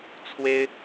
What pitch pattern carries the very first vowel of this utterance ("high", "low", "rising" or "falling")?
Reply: high